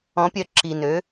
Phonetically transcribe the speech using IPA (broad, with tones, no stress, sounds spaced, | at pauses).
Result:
ɔ̃˧˥ pʲ œ˧˥ ǁ i˨˩ n ø˩˥